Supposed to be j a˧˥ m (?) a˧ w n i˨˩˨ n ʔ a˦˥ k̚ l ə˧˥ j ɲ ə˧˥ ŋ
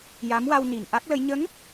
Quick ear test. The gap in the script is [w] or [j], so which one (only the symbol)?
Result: w